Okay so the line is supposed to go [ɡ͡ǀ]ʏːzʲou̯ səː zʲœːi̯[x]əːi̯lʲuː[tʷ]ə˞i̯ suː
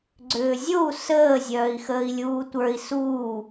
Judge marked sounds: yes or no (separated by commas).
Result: yes, yes, yes